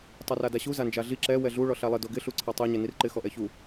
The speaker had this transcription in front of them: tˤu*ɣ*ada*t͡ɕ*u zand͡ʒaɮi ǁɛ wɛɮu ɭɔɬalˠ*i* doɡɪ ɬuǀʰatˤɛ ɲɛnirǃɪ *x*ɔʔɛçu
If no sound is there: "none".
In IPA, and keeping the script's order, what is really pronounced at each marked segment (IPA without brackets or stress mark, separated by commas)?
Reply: r, ɕ, ɪ, x